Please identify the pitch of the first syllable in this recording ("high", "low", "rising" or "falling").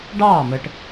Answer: falling